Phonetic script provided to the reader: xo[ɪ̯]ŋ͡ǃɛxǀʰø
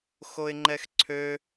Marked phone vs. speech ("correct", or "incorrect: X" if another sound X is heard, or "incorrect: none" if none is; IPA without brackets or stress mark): correct